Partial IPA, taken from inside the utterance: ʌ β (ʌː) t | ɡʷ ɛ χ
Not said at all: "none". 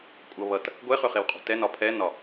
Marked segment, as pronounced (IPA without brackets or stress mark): ʌ